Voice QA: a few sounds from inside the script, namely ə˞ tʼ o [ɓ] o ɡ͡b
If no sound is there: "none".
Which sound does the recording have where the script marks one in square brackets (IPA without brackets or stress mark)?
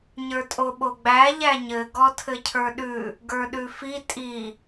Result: ɓ